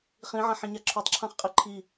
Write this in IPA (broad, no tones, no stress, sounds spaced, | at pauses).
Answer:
χ ĩ ʕ ã ħ ĩ ɲ a ǁʰ o tˤ ǁʰ ã χ qʼ i ǃʰ i